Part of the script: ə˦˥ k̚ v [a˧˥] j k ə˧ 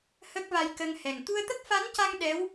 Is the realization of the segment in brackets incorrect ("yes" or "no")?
yes